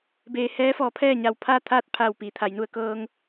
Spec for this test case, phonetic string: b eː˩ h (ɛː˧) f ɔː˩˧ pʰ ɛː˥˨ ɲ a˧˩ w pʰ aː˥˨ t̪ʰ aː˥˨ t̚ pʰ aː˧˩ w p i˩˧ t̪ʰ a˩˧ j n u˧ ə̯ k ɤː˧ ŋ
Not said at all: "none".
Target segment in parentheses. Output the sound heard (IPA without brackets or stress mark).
ɛː˧˥